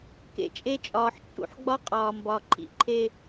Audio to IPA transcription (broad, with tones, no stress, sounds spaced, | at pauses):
k ḛ˨ t͡ʃʼ e˦ t͡ʃʼ ɒː˨ ħ t͡ʃʼ ṵ˨ ħ ɡ͡b ɒ˦ qʼ ɒː˨ m b ɒ˨ ǃʰ ḭ˦ ǃʰ e˦˨